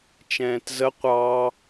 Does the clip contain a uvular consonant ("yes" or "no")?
yes